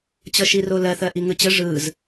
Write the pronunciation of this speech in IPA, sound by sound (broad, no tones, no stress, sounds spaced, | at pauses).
t͡ɕ ʌ ʃ i r o l ɜ θ ɜ ʔ i ŋ ɯ t͡ɕ ə ʐ ɯ z